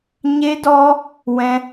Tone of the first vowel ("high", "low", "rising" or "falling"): high